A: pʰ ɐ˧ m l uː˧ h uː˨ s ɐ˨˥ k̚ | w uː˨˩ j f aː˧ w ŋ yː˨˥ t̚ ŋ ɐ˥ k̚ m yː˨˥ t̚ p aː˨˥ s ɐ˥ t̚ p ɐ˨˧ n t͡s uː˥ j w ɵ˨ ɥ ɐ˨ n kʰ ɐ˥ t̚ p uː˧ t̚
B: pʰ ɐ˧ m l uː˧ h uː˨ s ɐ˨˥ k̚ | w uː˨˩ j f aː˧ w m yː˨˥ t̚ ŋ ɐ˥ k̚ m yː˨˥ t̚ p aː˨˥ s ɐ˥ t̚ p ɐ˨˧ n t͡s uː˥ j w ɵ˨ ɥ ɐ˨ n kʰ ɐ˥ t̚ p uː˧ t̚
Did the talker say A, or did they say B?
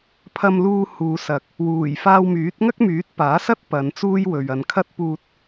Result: B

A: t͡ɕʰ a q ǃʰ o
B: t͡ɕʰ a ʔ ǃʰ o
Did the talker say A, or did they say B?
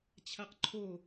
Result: A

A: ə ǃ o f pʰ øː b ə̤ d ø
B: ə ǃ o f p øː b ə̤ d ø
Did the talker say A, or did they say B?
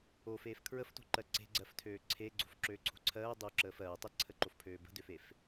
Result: A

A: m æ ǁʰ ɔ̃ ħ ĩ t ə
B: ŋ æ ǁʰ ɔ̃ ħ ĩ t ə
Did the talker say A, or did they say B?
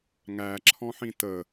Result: B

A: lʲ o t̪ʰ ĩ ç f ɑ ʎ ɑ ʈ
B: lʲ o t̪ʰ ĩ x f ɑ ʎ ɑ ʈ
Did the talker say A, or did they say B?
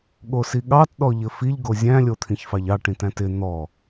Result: A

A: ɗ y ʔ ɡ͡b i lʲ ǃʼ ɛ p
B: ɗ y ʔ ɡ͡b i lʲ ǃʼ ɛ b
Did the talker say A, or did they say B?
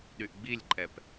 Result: A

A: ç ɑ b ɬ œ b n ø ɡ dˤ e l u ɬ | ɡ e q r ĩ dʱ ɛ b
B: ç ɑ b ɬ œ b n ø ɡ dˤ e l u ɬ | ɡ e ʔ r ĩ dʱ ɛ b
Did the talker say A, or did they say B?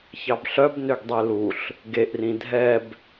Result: B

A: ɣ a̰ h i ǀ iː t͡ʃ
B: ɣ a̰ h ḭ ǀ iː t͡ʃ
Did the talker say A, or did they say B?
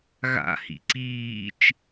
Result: B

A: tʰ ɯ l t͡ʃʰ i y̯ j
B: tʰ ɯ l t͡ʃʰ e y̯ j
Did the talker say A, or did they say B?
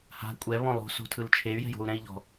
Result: B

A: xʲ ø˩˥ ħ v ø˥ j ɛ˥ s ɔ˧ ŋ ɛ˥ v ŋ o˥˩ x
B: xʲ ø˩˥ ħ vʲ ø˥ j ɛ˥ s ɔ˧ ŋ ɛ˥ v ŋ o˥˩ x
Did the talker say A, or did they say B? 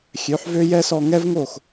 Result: A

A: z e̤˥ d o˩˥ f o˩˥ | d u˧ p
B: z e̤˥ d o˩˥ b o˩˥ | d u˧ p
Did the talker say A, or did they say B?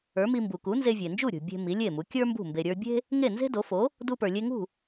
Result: A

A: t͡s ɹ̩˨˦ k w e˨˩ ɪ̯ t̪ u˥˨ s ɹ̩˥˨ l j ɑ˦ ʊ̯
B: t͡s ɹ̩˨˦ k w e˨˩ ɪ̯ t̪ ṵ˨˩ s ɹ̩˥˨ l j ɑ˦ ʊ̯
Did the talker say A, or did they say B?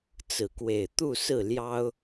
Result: A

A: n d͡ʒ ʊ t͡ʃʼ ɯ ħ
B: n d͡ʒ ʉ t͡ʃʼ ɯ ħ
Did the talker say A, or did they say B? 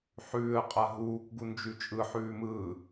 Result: B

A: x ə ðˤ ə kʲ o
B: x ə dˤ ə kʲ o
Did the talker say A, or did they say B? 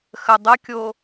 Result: B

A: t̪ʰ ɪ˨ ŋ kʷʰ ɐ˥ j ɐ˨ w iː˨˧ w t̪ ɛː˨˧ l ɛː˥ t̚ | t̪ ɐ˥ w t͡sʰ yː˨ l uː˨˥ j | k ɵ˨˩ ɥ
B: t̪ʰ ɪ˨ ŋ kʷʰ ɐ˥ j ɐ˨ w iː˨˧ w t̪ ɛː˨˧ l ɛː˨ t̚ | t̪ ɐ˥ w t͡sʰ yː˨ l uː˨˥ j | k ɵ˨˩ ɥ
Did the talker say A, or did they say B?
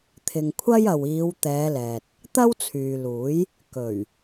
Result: B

